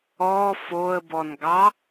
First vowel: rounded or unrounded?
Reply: rounded